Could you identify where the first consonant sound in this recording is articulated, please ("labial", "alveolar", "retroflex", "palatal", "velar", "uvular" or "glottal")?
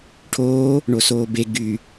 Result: retroflex